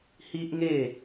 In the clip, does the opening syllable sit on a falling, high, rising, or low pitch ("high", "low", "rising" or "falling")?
high